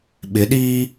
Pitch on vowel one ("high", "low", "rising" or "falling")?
rising